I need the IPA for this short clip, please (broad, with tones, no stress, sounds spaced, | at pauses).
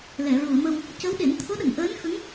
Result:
l ɛ˨˩˨ ɹ u˨˩˨ ə̯ m ə˧ w | c ə˧˥ w ɗ e˨˩˦ n t̪ʰ o˧˥ ɗ ə˨˩˨ ŋ ʔ əː˧˥ n x ə˧˥ ŋ